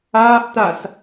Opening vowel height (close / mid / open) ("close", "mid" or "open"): open